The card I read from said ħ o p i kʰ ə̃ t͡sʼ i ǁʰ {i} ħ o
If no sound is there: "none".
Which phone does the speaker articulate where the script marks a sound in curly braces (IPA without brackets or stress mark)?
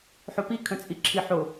i